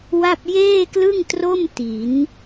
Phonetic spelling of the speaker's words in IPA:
w a˥˩ p̚ j eː˥˩ k l ɯ˥˩ ŋ t r o˥˩ m t i˩˦ n

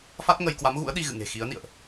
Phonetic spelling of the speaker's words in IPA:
f a˦˥ t̚ ŋ ə˧ j k w a˨˦ m ɣ ṵ˧˥ ə̯ ɗ i˧ ɣ ɨ̰˧˨ ŋ e̤˨˩ x i˨˦ ə̯ n ḭ˧˨ ə̯ ʔ

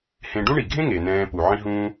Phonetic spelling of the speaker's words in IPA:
h ẽ˨ ɖ ũ˥ ɳ i˩ ɡʱ ẽ˥ ŋ e˩ n ɛ̃ː˨ p u˩ ʕ ĩ˨ ɦ ũː˨

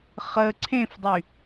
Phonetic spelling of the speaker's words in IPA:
χ ə ǀʰ ẽ f dˤ y

